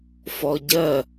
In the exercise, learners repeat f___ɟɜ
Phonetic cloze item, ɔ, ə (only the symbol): ɔ